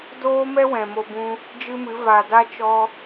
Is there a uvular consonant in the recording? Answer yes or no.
no